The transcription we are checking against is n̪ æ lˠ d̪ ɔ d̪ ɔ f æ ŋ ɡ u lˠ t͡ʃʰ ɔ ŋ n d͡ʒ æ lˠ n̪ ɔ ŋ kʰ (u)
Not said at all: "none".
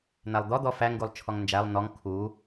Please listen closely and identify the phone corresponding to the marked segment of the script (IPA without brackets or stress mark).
u